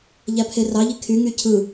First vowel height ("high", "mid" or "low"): low